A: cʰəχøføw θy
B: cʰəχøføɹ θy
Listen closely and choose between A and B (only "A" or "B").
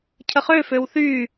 A